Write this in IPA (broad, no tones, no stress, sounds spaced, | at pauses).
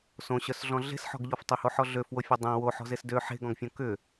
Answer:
s õ ɕ œ s ɮ ɔ̃ ɮ e̤ s ħ ɔ̤ ɡ ʎ ɔ f tˤ ʏ h o ħ ɔ ɮ ø f w o fʲ o dˤ ẽ w o ħ ɔ̤ z e s d ø ħ e̤ ɡ ɔ̃ ɡ fʲ õ k ʏ